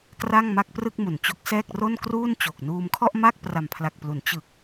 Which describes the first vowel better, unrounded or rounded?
unrounded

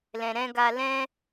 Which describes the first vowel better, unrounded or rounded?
unrounded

